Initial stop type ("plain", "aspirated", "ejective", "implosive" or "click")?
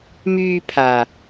aspirated